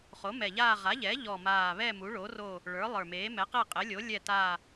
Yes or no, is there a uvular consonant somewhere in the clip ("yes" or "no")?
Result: yes